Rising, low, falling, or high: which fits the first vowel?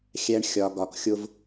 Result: high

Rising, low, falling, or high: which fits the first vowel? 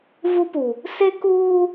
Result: high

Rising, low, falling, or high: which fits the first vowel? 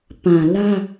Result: low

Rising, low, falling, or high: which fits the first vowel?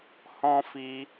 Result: high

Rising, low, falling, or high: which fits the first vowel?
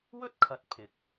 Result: high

